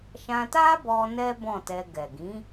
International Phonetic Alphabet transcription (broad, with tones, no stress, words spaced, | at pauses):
ʃã˧ta˦bɔ˧ nɛ˦bɔ̃˦˨tɛ˧ ɡɛ˨ɡĩ˨˦